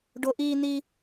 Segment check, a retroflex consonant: present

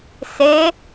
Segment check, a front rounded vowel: absent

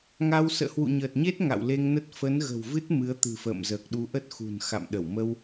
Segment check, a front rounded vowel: absent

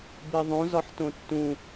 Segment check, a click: absent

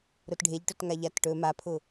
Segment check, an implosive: absent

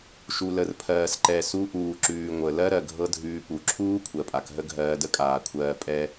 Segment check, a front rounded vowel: absent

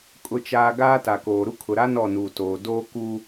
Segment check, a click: absent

